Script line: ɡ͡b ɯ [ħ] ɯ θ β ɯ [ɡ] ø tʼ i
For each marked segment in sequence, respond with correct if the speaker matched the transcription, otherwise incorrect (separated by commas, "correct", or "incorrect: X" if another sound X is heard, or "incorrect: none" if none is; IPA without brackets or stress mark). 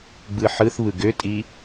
correct, correct